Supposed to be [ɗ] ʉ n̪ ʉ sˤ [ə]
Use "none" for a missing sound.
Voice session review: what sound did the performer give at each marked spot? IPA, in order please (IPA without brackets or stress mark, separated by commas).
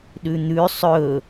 ɗ, ɵ